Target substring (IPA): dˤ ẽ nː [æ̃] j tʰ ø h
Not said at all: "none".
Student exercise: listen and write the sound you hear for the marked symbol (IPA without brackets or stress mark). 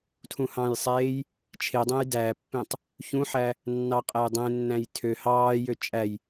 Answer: æ̃